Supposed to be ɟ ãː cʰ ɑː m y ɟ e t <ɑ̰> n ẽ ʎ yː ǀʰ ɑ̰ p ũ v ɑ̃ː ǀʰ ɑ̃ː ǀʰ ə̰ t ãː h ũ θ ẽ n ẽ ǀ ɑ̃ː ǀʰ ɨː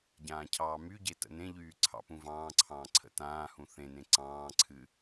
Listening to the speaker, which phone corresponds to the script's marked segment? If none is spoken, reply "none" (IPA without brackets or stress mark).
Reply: ə̰